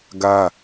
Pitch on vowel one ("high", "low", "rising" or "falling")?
high